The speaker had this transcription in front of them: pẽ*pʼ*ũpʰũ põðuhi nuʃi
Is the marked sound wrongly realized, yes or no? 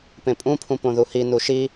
no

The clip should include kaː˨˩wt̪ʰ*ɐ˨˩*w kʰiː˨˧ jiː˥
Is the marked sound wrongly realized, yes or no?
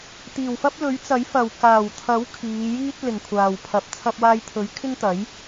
yes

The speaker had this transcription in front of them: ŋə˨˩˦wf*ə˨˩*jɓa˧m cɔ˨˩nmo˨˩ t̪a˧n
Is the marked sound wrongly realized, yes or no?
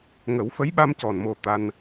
yes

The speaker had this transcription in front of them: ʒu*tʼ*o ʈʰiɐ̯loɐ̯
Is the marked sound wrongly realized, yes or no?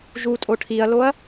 no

